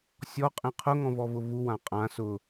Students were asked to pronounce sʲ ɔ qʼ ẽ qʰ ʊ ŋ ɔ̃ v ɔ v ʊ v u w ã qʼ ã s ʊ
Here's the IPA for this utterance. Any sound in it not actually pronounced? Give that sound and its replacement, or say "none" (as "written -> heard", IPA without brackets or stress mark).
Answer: none